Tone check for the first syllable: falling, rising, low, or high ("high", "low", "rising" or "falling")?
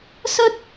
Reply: high